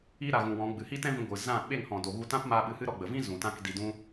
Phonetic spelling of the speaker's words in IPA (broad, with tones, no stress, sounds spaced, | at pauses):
iː˧ ɾ a˨ ɣ ũ˨ w ɔ̃˨˦ ɡ͡b ɨ˨ h iː˦ t ɛ̃˦ v ĩ˧ ɡʷ ɨ˨ z ã˦˨ ɓ e˦˨ ŋ h ɔ̃˨ d o˨ ɣ u˧ t ã˦ p m a˧ ɓ ɨ˧ h ɨ˦ ɾ ɔ˧ ɡ͡b ə˨ v ĩ˦ z ũ˨ t ã˦ k d i˧ d ũ˦